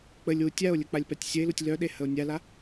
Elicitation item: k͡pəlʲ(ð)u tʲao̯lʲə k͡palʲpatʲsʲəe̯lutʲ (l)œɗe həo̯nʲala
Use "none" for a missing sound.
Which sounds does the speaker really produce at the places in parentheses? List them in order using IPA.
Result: w, l

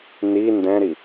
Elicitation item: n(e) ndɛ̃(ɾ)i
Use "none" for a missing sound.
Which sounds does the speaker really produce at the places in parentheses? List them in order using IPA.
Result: i, ɾ

